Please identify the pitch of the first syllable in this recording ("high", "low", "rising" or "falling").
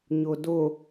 low